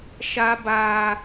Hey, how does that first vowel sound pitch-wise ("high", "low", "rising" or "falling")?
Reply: high